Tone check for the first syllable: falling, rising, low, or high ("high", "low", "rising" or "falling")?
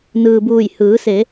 low